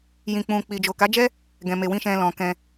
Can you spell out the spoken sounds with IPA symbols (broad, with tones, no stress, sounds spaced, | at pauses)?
j ĩ˧ k͡p ũ˧ k͡p i˨ d͡ʒ o˨ k a˨˦ d͡ʒ ɛ˦ | ɡ ɛ̃˧ m e˧ w ĩ˦ ʃ ɛ̃˧ l ɔ̃˨ k ɛ̃˧